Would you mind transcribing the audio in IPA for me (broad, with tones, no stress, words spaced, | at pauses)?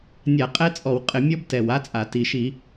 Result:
nʲa˧˩˧qʼɛ˦˥t͡sʼɔ˧˩˧w qʼɪ˧˩˧ mʲɔ˦˥btɛ˨˩wa˦˥t͡sʼa˧˩˧ ti˨˩ʃi˧˩˧